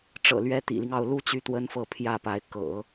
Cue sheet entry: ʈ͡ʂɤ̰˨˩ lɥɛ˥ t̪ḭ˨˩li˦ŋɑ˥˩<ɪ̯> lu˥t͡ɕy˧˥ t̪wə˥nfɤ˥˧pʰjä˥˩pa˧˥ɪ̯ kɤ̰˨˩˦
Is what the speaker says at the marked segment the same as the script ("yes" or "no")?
no